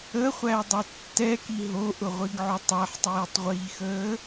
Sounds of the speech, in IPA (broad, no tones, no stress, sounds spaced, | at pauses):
ə χʷ æ dˤ ʊ tː ɛ k i ɦ o ʔ ʊ ʁʷ i ɡ ʕ ʊ tˤ æ ħ tˤ iː tˤ ʁʷ iː x əː